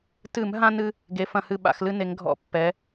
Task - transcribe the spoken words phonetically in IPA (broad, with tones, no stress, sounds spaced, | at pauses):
t ɨ˧˩˧ m ɦ ã˦ n ɨ˦ | ɡ e˩˧ f ɐ̃˧˩˧ h ɨ˧˩ ɓ a̰˧˩˧ x l ɨ˦ n e˩˧ ŋ ɡʱ ɔ̰˧˩˧ pː ɛ˩˧